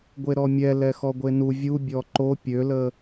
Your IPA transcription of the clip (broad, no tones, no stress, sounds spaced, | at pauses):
ɡʷ e ɾ ɔ mʲ ɛ l ɛ x ɔ ɡʷ e n u vʲ u bʲ ɔ ǃ o pʲ ø l ə